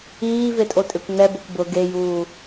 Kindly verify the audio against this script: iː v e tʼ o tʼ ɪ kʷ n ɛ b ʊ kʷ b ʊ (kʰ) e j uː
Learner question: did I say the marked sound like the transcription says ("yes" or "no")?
no